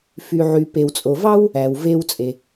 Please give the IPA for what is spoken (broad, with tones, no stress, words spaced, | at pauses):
fy˩ʕy˩ pe˩wt͡sʼo˩vɑ˥w | æ˩wve˧wt͡sʼe˩